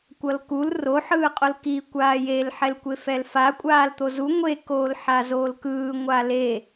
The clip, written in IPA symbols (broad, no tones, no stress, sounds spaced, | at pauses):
kʷ ʌ l k u l r o ħ ɯː qʼ o l k i kʷ aː j e l ħ ɛ l kʷ e f ɛ l f a kʷʼ aː l t̪ o z u ŋʷ e k oː l ħ a z oː l k ɯː ŋʷ a l e